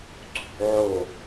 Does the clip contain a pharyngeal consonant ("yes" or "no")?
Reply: yes